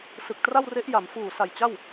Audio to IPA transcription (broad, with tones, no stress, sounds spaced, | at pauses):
s ɯ˨˩ k̚ t r a˥˩ w r e˦˥ ʔ j a˩˦ m f uː˨˩ s a˨˩ j t͡ɕ a˥˩ w